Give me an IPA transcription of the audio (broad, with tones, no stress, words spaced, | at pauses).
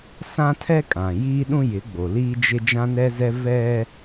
sã˦tʰɛ˦kʼã˨ jiː˦ɗũ˦ jɪ˨˦ɡ͡bo˨liː˦ d͡ʒɪ˦ d͡ʒã˦nɛ˦zɛ˦ vɛ˦